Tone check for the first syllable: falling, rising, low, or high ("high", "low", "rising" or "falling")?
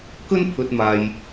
high